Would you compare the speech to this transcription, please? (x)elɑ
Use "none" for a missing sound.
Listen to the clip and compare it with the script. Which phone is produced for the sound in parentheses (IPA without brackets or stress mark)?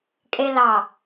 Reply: kʼ